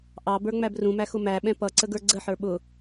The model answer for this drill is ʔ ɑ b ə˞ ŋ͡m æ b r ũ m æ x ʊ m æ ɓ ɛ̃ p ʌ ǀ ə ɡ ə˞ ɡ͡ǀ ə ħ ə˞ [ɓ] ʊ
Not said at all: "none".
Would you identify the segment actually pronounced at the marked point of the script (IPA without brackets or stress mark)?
ɓ